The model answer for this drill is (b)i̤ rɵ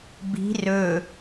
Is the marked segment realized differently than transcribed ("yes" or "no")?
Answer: no